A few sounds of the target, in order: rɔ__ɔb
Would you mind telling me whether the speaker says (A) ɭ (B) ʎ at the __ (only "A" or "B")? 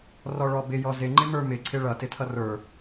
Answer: A